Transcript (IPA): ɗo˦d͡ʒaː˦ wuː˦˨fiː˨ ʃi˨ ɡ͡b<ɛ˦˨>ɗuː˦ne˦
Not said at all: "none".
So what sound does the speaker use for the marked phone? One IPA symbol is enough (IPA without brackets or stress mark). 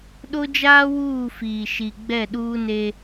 ɛ˦˨